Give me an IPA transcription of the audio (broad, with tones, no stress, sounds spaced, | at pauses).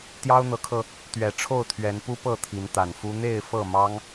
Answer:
t̪ j ɑ˦ ʊ̯ n̪ ɤ˨˦ kʰ ɤ˧ | t̪ ɥ ɛ˨˩ ʈ͡ʂʰ o˥˨ ʊ̯ t̪ʰ ɥ ɛ˨˦ n p u˦ p ɤ˥˨ t̪ʰ i˨˦ n t̪ a˨˩ n f u˦ n̪ e˥˨ ɪ̯ f ɤ˥˨ m ɑ˦ ŋ